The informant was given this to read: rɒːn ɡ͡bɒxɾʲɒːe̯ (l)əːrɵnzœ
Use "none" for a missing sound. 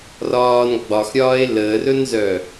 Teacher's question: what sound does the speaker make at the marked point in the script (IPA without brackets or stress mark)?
l